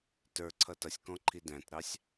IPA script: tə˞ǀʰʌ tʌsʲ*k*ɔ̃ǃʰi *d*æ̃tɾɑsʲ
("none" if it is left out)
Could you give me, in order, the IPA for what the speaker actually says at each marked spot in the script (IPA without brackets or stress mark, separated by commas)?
k, d